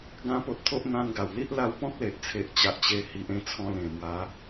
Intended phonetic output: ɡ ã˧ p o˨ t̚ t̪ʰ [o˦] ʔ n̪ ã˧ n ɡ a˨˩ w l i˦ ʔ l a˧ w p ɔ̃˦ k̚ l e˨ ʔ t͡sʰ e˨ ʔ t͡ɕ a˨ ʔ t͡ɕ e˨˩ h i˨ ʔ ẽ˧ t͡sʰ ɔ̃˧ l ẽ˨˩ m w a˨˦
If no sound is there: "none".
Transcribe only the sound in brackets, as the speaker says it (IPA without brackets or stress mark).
o˦